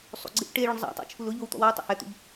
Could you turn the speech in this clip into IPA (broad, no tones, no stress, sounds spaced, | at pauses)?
sˤ ṵ ɡ͡ǀ ɪ ʔ ʈ e ɭ ʊ ɳ zˤ a̰ tˤ o̰ t͡ʃʰ u l ʊ ʎ o w t̪ ɔ̰ w ɔ w tˤ ḛ h ɛ t̪ ṵ ʎ